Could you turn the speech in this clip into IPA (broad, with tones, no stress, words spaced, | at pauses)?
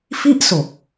fi˥˩ʔso˨˩k̚